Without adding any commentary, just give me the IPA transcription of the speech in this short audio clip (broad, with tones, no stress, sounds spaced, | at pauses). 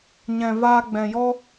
ɲ ɛ̃˨ v aː˧ ɡ͡b ɛ̃˨ j ɔ˦